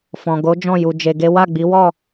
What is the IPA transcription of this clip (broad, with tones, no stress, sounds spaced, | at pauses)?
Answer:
f ɔ̃˨ ɡ o˨˦ d͡ʒ ɔ̃˦˨ j u˧ d͡ʒ e˧ ɡ e˦ w a˦˨ ɡ͡b i˨˦ w ɔ˦˨